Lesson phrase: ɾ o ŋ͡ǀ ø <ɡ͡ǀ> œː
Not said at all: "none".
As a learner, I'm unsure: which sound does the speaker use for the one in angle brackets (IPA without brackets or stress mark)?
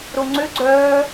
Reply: ɡ͡ǀ